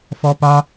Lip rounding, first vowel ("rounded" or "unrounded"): rounded